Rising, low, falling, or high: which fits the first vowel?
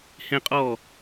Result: high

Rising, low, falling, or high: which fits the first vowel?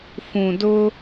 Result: low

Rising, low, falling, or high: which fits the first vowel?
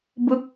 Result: falling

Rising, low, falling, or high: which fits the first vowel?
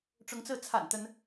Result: rising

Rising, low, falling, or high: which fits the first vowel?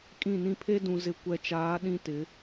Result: falling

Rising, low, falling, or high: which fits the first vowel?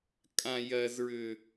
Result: high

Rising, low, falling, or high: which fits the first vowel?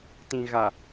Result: low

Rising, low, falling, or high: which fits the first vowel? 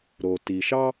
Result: low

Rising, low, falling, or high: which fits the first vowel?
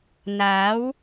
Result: rising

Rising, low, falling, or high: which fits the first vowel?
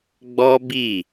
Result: high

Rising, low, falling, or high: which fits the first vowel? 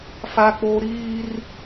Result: high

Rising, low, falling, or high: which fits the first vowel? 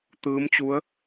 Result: rising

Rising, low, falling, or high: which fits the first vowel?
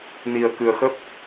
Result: low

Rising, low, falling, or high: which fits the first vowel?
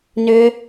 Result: high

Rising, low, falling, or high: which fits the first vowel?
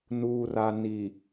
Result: low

